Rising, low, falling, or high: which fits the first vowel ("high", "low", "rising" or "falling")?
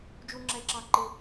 high